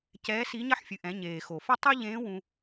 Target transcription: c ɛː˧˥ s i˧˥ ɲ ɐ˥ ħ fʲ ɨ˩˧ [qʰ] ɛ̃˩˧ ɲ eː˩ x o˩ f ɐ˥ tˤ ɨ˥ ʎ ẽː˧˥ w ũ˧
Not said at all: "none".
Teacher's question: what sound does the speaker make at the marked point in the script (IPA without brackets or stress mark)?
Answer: ʔ